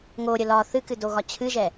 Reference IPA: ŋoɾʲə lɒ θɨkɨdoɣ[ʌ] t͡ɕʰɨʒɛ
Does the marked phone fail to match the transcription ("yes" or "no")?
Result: yes